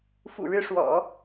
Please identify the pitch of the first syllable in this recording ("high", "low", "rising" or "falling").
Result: low